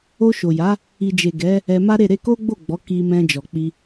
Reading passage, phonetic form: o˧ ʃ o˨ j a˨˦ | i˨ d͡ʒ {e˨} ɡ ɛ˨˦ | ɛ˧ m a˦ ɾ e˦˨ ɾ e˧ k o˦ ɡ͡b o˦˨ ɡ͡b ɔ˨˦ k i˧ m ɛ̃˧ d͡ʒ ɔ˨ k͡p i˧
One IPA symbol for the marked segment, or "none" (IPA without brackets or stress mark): e˨